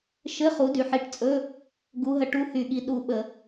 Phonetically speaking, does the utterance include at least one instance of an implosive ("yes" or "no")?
yes